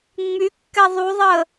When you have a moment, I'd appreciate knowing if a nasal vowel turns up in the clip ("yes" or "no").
no